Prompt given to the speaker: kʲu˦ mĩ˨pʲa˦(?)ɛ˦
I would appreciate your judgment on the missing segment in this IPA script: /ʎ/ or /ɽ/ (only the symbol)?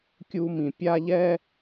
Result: ʎ